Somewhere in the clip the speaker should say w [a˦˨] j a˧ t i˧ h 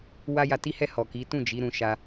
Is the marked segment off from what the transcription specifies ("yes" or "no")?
yes